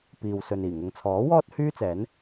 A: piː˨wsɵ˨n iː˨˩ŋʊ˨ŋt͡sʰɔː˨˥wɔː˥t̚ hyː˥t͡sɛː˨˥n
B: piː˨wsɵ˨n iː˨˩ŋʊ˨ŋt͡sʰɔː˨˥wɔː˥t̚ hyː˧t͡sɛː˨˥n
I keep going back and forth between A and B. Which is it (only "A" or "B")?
A